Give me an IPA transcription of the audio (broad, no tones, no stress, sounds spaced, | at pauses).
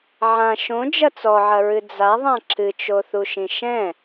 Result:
ʕ ã ʃ õ d͡ʒ ɐ t͡s ɔ ʕ ɐ ɹ ɨ d͡z a ðˤ ã ǁ ɨ t͡ʃ o θ u ʃ ĩ ʃ ɛ̃